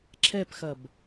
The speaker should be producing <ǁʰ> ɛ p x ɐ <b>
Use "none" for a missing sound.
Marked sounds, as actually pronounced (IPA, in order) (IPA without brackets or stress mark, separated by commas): ǁʰ, b